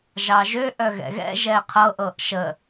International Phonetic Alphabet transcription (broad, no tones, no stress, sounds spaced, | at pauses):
ʒ ɑ ʒ ø ʔ œ ɣ ɛ̰ ɣ ɛ̰ ʒ ɛ qʰ ɤ ʔ ɤ ʔ ʃ ə